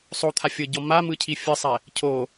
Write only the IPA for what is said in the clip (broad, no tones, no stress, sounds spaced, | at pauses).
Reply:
sˤ o t̪ʰ a fʲ ɤ ɟ ɔ m a m ɯ cʰ i fʲ ɯ sˤ ɛ | cʰ o